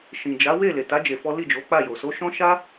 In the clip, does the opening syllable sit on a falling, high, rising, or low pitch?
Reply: low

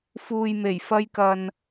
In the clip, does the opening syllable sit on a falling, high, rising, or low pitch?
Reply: low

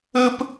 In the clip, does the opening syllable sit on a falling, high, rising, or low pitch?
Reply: high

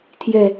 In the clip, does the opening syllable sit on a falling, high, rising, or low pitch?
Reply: low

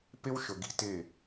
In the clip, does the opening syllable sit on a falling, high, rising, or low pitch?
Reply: high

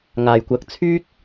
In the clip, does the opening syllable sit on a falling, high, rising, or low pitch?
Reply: low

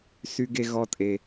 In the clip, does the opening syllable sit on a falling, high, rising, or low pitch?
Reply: high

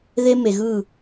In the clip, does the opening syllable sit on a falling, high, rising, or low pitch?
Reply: high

